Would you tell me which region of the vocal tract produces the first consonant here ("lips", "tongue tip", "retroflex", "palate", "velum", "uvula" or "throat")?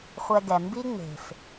uvula